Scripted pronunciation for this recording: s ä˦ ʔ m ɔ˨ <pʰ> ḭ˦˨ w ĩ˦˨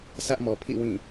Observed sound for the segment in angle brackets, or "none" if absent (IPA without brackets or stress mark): pʰ